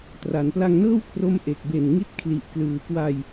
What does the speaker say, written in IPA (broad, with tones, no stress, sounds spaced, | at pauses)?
t r a˩˦ n p l a˧ ŋ n ɤː˥˩ w kʰ r o˦˥ m ʔ e˨˩ k̚ b e˨˩ n ŋ i˦˥ t̚ kʰ l i˨˩ ʔ k l ɯː˩˦ k w a˧ j